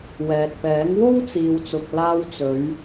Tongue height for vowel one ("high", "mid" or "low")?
mid